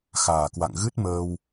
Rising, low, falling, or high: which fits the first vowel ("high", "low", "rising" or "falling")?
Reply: low